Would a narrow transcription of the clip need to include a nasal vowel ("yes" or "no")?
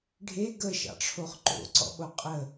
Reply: no